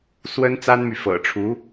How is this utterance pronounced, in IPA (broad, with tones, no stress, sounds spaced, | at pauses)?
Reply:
s w ə˥ n t͡s a˥ n m y˨ f ɤ̰˨˩ ʈ͡ʂʰ u˧˥